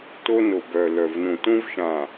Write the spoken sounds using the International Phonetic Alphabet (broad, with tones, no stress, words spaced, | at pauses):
to˦no˨bœ˨ lœ˨vnũ˨tũ˦vʃã˨